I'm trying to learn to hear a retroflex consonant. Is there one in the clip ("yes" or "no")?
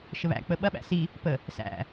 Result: no